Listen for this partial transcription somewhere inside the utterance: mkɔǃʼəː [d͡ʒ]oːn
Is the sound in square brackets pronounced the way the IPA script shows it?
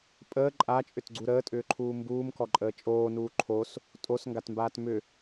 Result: no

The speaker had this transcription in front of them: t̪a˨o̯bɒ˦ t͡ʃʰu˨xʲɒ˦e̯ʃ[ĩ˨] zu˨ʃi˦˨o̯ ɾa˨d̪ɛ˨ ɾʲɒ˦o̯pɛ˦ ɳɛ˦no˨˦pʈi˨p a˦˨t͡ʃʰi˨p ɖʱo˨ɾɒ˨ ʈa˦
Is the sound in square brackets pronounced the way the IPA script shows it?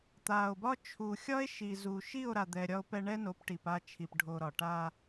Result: no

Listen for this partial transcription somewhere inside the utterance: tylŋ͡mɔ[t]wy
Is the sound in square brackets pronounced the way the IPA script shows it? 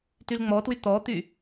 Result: yes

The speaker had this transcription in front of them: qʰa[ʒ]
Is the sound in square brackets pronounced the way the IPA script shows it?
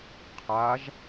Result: yes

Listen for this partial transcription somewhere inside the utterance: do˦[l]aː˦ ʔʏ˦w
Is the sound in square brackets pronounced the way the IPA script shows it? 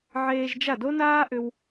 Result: no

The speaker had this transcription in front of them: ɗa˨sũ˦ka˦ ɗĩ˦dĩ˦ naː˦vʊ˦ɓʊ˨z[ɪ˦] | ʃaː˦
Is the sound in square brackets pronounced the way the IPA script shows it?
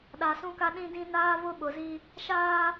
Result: no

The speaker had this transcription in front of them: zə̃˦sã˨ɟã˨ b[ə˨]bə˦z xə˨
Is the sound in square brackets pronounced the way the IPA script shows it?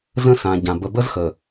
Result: yes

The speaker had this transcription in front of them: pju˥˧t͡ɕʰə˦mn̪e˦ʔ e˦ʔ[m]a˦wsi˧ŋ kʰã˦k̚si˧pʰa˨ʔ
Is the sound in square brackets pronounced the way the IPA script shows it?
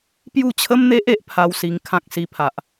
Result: no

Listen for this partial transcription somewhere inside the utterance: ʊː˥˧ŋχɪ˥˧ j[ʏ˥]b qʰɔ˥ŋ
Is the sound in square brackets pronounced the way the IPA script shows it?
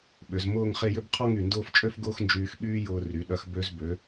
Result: yes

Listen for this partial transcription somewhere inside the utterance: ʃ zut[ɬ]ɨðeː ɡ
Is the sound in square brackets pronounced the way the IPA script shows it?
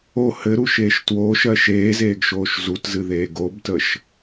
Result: no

